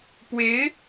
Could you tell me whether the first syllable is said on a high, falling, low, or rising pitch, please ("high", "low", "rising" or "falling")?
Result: rising